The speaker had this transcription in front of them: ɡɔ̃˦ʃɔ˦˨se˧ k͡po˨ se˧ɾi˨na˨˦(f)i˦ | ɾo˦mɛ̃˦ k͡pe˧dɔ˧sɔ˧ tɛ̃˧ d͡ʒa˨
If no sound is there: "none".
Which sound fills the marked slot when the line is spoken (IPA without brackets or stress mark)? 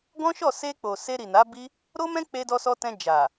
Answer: b